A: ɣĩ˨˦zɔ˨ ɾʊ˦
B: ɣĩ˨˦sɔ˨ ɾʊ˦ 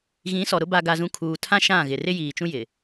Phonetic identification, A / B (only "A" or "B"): B